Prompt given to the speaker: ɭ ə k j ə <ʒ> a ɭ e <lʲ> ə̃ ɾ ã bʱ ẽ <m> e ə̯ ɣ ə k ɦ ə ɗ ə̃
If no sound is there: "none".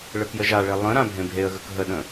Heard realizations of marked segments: ʒ, lˠ, bʱ

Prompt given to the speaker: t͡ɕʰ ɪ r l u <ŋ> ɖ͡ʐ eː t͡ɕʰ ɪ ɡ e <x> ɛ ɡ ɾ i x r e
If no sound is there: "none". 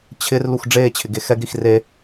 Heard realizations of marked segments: x, x

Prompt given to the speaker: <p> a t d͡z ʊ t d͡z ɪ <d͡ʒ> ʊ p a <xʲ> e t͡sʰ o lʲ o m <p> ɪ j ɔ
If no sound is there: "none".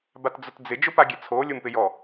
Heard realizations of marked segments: b, d͡ʒ, ɡʲ, p

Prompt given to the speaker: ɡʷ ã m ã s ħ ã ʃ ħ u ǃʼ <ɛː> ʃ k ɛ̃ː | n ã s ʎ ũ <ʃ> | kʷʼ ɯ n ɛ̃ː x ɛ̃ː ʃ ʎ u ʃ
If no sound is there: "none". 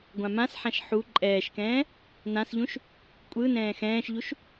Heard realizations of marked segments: ɛː, ʃ

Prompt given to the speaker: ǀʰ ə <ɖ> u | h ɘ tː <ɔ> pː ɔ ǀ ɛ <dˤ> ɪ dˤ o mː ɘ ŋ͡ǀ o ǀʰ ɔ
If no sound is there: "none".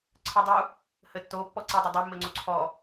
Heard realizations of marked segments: dˤ, o, dˤ

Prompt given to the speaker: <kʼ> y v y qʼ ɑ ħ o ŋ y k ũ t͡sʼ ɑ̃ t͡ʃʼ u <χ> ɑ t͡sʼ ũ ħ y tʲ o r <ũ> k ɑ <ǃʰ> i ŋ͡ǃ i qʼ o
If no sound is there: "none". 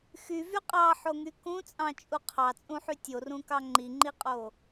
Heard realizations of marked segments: x, qʰ, ũ, ŋ͡ǃ

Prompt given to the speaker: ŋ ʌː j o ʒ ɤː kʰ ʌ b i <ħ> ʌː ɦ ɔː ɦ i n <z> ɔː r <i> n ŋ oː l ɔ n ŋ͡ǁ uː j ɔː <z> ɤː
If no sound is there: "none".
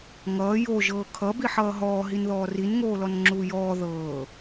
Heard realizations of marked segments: ħ, ð, i, ð

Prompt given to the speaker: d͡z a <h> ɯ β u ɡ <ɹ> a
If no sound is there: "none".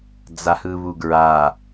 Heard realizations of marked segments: h, ɹ

